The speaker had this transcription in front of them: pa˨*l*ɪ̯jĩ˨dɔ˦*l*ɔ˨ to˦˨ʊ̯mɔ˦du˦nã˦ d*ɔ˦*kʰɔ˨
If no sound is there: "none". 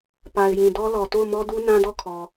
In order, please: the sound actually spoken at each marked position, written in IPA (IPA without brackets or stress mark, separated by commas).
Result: none, l, ɔ˦˨